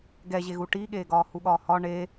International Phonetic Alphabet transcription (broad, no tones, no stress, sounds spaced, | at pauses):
ɡ ɛ ʑ e ɣ u ʈ i ɠ eː ɡ ɒː h u ɠ ɒː h ɒ ɳ e